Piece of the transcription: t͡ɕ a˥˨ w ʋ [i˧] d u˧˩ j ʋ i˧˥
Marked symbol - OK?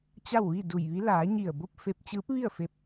no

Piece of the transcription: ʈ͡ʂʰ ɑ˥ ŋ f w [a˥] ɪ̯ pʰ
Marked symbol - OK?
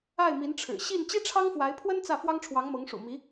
no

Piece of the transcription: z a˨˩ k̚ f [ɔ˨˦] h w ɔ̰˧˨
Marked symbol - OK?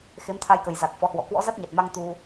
yes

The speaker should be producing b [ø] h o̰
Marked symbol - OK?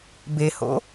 no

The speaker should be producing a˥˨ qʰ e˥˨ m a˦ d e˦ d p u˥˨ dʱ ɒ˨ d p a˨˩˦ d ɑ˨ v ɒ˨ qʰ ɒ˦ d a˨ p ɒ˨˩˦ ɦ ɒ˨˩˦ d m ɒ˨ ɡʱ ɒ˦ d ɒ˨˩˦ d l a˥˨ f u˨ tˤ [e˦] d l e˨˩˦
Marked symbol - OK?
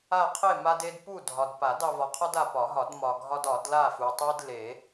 yes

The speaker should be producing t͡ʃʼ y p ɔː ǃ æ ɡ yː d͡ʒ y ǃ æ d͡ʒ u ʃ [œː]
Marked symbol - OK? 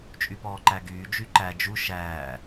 no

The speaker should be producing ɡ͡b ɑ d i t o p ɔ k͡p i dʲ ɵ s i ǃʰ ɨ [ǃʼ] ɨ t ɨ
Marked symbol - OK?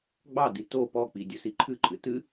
yes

